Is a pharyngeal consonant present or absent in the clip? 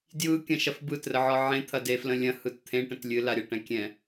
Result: present